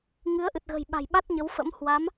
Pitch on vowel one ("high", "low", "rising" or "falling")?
rising